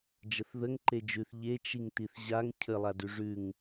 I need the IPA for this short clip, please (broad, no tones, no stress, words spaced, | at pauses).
d͡ʒəθðəŋ ǃed͡ʒʉθ ʎe t͡ʃiŋtiθʑaŋ cʰəlˠadʉ ʐʉŋ